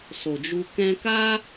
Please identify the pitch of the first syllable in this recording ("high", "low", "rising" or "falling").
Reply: low